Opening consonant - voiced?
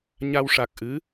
yes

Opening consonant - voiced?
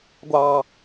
yes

